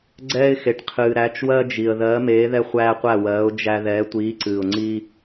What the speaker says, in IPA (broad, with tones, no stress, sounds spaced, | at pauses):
ɡ͡ǀ ɛː˦ ɪ̯ x e˨ ʈ qʰ ɨː˨ ɾ æ˨˥ t͡ʃ w ɜ˦ d͡ʒ i˨ ə̯ ð ɜː˨˥ m eː˨˥ ð ɛ˦ χʷ æː˦ qʷ æ˥˩ w ɜː˨˥ ʊ̯ d͡ʒ æ˦ ð ɛː˨˥ tʷ iː˨˥ ǀ ɨː˨ ʊ̯ ŋ͡ǀ iː˦